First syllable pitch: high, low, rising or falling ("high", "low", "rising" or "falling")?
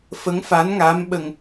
rising